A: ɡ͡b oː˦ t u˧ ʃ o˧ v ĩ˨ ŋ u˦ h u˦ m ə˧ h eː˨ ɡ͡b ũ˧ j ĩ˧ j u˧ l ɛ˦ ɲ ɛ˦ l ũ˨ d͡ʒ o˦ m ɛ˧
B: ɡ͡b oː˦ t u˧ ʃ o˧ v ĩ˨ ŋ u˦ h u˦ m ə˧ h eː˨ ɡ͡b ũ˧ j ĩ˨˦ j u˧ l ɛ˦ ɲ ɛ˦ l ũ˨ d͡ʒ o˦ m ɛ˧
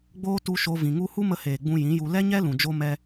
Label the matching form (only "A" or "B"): B